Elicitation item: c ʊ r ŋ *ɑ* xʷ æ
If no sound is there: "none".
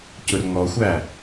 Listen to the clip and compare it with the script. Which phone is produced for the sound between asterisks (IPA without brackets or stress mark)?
ɔ